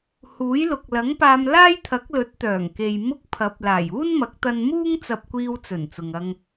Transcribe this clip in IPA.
h uː˨˥ j l ʊ˨ k̚ l ɐ˨˥ ŋ p aː˧ m l aː˥ j t̪ʰ ɐ˨˥ k̚ l ɵ˨˥ t̚ t̪ œː˨˩ ŋ k e˨ j m ʊ˥ k̚ pʰ ɐ˨˥ p̚ l aː˨˩ j uː˥ n m ɐ˨˥ k̚ t̪ ɐ˧ n m uː˥ ŋ t͡s ɐ˧ p̚ kʷ iː˧ w t͡s ɵ˨˩ n t͡s ʊ˨ ŋ ɐ˧ ŋ

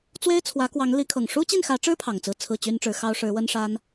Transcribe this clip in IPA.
t͡s w e˥ ɪ̯ t͡sʰ w ä˧˥ k w ɑ˧˥ ŋ l i˧˥ kʰ ɤ˨˩ ŋ ʂ u˥ t͡ɕ i˥˩ n x ä˧˥ ʈ͡ʂ ɻ̩˥ pʰ ɑ˨˩ ŋ t͡s ɹ̩˥˧ t͡sʰ ɹ̩˥˩ t͡ɕ y˥ n ʈ͡ʂ ɻ̩˧˥ x ɑ˥ ʊ̯ ʂ ɻ̩˧˥ w ə˥ n ʂ a˥ n

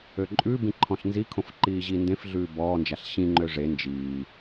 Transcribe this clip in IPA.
ø ǃʼ ʉ b ĩ ǃʰ ɔ̃ ɬ n z i kʰ õ f ǃ iː ʑ i n d ẽ f ɮ ʉː b ɔː n d͡ʒ a ɬ ɕ ĩ ŋ͡ǃ ø ʐ e n d͡ʒ iː

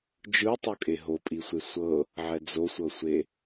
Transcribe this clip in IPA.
d͡ʒ ɯ tˤ o kʼ e ɦ o pʼ i sʷ e sʷ ɤ | ʕ ɛ d͡z o sʷ ɤ sʷ e

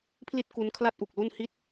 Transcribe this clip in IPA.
pʰ l i˥˩ t̚ k u˧ n kʰ l a˥˩ t̚ ʔ u˨˩ k̚ l u˥˩ n h i˦˥ t̚

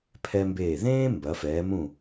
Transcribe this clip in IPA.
pʰ ɛ˧ m b eː˧˩ ð ẽː˥ m b ɐ˩˧ f ɛː˩˧ m ũ˧˩

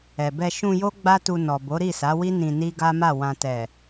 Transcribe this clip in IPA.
ɛ˨ b ɛ˧ ʃ ũ˧ j o˦ ɡ͡b a˦ t u˧ n ɔ˨ b o˨˦ ɾ i˦˨ s a˨˦ w i˦ n ĩ˧ n i˦ ɡ a˦ m a˦˨ w ã˨ t ɛ˨

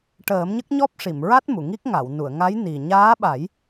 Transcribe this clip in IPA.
ʈ əː˨˩˦ m ɲ ə˦˥ k̚ ɲ ɔ˦˥ p̚ ʂ i˨˩˨ m ɹ a˦˥ t̚ m u˨˩˨ ŋ i˦˥ k̚ ŋ a˨˩˨ w n u˨˩˨ ə̯ ŋ a˧˥ j n i˨˩ ɲ aː˧˥ ɓ a˨˩˦ j

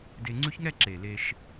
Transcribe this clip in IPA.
d e˧ ŋ͡ǀ ʉ˦˥ ç ŋ ɛ˥˧ ǁ e˨˩ l e˧ ʃ

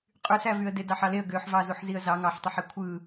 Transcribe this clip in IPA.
qʼ y s æ v y ə̯ d e d ɑ ħ ɑ l e ə̯ ɡ ø ħ v ɑ z u ħ z i ə̯ z ɑ ŋ ɑ ħ tˤ e ħ e kʷʰ ɯ

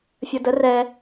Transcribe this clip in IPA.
fʲ ə˧ d ə˧˥ r ɛː˧

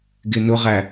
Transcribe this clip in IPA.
ɡ ɪ n ʊ ʁ æ

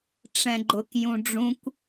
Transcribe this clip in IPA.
ʈ͡ʂ ɛ̃ ɡ͡ǃ ʊ k j ũ ɖ͡ʐ ũ kʷ

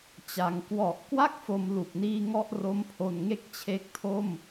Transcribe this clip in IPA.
t͡ɕ a˩˦ ŋ k w ɔ˨˩ ʔ k w a˥˩ k̚ f o˦˥ m l u˨˩ k̚ n iː˥˩ ŋ ɔ˥˩ ʔ r o˦˥ m pʰ o˧ n ŋ e˥˩ k̚ t͡ɕʰ e˦˥ k̚ tʰ o˥˩ m

